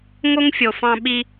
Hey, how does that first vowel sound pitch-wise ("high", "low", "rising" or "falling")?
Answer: high